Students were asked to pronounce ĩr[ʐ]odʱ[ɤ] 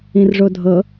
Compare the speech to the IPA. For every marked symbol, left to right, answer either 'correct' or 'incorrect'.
correct, correct

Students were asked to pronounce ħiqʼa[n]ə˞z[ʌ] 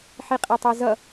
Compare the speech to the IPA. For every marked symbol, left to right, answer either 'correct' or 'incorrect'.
incorrect: tˤ, correct

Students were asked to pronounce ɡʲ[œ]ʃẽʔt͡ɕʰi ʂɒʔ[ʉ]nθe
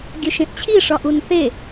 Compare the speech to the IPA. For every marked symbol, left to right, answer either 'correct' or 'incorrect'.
correct, incorrect: u

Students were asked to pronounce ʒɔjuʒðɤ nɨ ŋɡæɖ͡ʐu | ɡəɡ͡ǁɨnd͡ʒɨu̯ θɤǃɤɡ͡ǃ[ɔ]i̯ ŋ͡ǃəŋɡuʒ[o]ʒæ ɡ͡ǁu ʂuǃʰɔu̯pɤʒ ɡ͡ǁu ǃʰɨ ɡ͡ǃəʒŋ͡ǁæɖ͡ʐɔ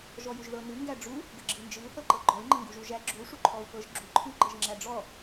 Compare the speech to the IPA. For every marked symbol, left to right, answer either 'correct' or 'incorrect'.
correct, incorrect: u

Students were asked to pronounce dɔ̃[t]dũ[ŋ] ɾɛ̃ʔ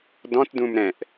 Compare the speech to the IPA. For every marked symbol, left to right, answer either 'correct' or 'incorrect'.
correct, incorrect: m

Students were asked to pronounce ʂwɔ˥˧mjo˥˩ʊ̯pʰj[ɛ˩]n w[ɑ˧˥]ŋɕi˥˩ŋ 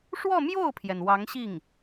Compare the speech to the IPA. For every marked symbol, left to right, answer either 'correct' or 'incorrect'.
correct, correct

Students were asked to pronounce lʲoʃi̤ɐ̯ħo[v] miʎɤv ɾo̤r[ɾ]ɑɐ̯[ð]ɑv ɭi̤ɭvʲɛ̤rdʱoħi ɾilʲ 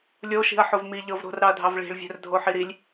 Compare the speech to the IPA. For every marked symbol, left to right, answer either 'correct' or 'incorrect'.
correct, correct, incorrect: dʱ

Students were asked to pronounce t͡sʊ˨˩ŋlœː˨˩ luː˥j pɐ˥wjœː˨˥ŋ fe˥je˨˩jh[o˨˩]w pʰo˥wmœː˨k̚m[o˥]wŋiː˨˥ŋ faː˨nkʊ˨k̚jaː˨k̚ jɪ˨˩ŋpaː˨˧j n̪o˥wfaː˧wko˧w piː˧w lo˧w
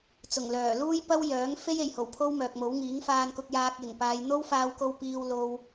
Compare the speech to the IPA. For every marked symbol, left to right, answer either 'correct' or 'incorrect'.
correct, incorrect: o˨˥

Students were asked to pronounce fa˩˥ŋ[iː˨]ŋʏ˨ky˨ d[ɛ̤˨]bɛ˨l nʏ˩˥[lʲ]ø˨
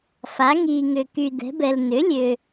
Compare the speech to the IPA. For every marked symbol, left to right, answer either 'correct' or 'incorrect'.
correct, incorrect: ɛ̤˩˥, correct

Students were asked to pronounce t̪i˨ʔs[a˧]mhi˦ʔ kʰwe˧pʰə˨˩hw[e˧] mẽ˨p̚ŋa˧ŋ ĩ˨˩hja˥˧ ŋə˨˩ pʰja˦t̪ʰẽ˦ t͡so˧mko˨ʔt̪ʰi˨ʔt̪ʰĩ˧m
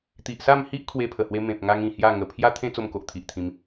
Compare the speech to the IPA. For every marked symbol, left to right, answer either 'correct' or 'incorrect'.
incorrect: a˥˧, correct

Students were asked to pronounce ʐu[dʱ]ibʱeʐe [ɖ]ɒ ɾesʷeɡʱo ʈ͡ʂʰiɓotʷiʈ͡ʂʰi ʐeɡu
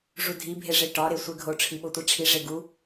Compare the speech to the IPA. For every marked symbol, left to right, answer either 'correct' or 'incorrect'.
correct, incorrect: ʈ

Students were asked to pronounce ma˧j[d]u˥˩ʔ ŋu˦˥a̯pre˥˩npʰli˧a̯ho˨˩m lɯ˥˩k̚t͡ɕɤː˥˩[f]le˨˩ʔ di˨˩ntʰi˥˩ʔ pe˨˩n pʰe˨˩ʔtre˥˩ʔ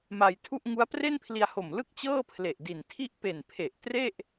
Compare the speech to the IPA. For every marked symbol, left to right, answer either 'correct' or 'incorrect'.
incorrect: tʰ, incorrect: pʰ

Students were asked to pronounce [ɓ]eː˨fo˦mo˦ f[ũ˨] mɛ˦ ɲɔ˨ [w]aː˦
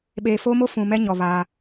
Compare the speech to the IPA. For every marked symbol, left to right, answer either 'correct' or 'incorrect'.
correct, correct, incorrect: β

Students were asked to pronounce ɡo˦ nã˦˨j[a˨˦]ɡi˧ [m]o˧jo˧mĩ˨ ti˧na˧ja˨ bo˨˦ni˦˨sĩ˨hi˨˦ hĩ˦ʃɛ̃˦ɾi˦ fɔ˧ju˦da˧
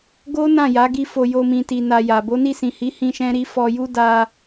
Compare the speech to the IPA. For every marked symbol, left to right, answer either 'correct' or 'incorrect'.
correct, incorrect: f

